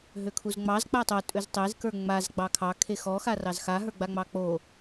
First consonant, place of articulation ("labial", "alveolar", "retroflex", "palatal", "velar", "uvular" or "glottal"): glottal